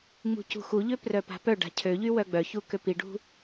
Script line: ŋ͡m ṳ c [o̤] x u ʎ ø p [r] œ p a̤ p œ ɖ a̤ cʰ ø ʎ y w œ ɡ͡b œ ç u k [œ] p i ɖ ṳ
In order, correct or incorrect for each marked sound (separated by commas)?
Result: incorrect, correct, incorrect